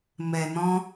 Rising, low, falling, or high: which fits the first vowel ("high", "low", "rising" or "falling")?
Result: low